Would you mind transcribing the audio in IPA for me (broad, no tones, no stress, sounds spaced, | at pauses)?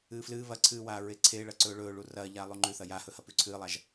ɨː f l ɨː β ɐ ǀʰ ɨː w aː ɹ e ǀʰ e ɭ ɐ ǀ ɵː ɭ ɵː ɭ u r ɐː ʎ aː lˠ u ŋ͡ǃ ʉ θ ɐ j a h ɵ h ɐ p ʉ ǀʰ ɨː lˠ a ʒ